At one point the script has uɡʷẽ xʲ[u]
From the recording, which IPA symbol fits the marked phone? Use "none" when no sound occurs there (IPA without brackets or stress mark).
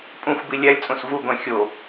o